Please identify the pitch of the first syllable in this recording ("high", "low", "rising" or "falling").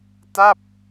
falling